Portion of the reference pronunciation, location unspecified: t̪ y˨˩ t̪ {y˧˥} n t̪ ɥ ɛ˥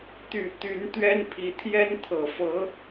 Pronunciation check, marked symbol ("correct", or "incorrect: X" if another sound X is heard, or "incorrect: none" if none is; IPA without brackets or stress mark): correct